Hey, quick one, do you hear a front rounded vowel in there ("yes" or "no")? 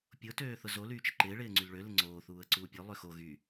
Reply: yes